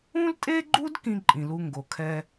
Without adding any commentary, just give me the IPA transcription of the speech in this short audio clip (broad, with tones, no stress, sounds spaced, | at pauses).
ũ˥ l tʼ e˥ ɡ͡ǃ u˥ d k ĩ˥ ǃʼ ĩ˩ l u˧ ŋ ɡ o˩ kʰ ɛ˧